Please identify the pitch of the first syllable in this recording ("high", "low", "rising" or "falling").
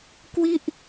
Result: falling